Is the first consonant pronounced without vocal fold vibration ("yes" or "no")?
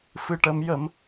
yes